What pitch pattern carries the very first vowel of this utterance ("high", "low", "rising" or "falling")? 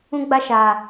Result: high